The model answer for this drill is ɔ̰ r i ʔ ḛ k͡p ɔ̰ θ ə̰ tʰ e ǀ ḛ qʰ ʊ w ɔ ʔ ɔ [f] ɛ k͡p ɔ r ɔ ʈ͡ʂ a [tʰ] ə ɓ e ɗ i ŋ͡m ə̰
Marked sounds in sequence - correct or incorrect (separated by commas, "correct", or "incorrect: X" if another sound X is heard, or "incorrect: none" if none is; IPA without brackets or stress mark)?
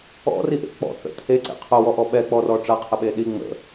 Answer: incorrect: ɓ, incorrect: qʰ